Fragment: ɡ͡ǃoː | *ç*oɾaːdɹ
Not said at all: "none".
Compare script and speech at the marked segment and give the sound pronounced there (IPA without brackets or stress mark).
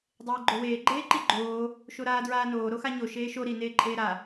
ʃ